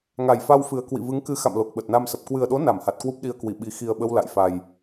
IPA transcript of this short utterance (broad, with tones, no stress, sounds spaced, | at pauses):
ŋ a˨˩ j f a˧ w f ɨ˨˩ ə̯ k w ḭ˧˨ v ɨ˨˦ ŋ k ɨ˨˦ x a̰˧˨ m l o˨˩ k̚ ɓ ə˨˩ t̚ n a˧ m s ə˨˩ p̚ k w ɨ˨˩ ə̯ ɗ o˨˦ n a˧˩ m h a˨˩ t̚ k w u˦˥ p̚ ɗ i˧ ə̯ k w i˧˩ ɓ i˨˩ x i˨˩ ə̯ ɓ ə˧ w l a̰˧˨ j f a˨˩ j